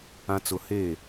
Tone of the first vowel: low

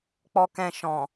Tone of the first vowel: low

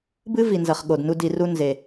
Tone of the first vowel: high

